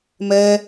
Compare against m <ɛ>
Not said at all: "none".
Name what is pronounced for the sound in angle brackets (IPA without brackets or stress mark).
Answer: ɛ